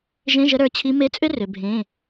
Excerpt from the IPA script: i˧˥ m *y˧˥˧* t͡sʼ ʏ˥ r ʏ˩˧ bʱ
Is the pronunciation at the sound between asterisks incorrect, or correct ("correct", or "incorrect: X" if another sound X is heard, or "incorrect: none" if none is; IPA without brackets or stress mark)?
incorrect: e˧˥˧